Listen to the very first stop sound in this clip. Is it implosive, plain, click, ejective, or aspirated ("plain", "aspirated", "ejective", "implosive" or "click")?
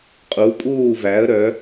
ejective